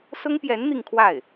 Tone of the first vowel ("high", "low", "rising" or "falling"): high